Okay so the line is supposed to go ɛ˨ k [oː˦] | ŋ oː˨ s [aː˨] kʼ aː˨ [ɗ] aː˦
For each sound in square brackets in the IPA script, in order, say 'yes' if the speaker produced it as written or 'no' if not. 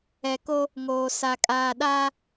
no, no, yes

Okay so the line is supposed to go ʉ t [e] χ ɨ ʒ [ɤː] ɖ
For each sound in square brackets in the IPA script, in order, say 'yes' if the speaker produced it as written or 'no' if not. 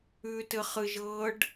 no, yes

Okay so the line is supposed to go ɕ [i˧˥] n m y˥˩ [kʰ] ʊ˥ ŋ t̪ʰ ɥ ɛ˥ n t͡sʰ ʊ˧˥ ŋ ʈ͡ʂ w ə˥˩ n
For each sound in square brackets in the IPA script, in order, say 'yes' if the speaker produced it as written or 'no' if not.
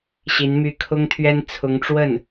yes, yes

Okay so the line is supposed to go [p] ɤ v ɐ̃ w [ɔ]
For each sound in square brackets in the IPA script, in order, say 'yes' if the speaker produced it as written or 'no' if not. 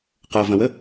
no, no

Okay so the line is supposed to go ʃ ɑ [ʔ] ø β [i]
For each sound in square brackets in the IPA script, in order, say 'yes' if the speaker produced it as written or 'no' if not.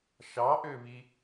yes, yes

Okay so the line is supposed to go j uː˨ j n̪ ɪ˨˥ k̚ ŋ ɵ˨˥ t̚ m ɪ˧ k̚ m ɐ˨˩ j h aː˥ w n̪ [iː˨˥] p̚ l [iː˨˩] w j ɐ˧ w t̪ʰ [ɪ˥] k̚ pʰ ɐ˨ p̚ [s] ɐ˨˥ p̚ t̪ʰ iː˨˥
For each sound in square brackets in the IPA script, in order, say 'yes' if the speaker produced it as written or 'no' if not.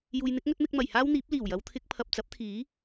yes, yes, no, no

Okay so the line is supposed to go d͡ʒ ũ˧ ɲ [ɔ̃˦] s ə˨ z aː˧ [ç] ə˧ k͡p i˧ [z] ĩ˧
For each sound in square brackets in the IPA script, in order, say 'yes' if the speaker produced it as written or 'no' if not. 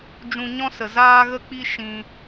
yes, no, no

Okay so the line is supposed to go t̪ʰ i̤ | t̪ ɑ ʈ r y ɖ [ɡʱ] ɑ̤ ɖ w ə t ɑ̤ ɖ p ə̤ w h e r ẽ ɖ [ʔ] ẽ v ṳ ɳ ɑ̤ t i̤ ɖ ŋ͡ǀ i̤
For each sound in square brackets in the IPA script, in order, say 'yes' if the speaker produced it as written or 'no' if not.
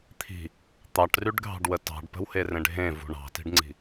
yes, no

